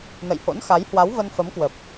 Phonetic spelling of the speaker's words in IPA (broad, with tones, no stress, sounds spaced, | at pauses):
n ə̰˧˨ j h o̰˧˥ n x a˨˦ j h w a˨˦ w v ə˧ n f ə˨˦ m k w ə˨˩ p̚